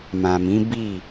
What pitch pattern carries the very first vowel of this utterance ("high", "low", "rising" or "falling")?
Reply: low